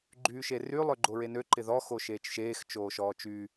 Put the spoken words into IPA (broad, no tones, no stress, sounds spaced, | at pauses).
ɡ͡ǃ yː ʃ e r y lˠ ø ɡ͡ǃ o ɹ e n ø ǃ ɪ ð ɔ x o ʃ eː t͡ʃ ʃ eː x t͡ʃ oː ʃ ɔː t͡ʃ y